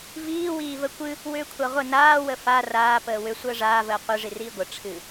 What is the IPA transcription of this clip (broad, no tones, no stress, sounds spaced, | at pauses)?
v iː w iː v ə kʷ ɨ | w ʏː kʷʰ a ʁʷ ə n aː w ə f a r aː p əː w ʏ sʷ əː ʐ aː v əː qʷ ɨ ʐ i r iː ɡʷ ə ʈ͡ʂʰ ɨ